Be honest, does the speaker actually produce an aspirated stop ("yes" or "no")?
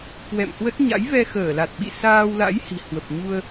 no